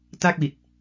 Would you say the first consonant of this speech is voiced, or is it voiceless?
voiceless